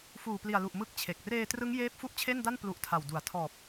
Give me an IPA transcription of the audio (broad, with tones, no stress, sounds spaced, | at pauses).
f uː˨˩ p l i˨˩ a̯ l u˨˩ ʔ m ɯ˥˩ k̚ t͡ɕʰ e˨˩ k̚ r eː˧ t r ɯ˦˥ ŋ j eː˦˥ p̚ f u˦˥ ʔ t͡ɕʰ e˥˩ n d a˥˩ n p l u˨˩ ʔ tʰ a˨˩ w d u˨˩ a̯ tʰ ɔː˨˩ p̚